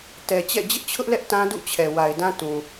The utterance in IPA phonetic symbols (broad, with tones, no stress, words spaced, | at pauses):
tɛ˨t͡ɕɛ̰˦˨ d͡ʑɪ˦ʔt͡ɕʰʊ˦ʔlɛ˦ʔ tã˦dṵ˦˨t͡ɕʰɛ˨ wa˨ɪ̯dã˦ tũ˨